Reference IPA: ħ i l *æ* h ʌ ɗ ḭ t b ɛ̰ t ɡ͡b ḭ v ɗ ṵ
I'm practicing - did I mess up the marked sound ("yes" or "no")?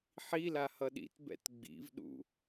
yes